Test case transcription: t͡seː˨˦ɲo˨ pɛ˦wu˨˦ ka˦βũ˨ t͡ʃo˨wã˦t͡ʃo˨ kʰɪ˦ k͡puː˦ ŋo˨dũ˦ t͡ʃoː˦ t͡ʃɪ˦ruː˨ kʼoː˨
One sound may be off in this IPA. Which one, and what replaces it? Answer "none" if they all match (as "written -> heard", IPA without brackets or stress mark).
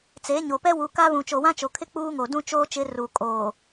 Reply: none